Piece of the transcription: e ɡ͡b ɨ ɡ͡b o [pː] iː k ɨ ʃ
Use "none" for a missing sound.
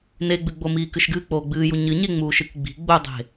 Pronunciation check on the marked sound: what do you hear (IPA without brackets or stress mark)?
m